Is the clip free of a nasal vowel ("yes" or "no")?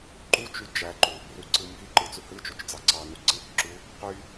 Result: yes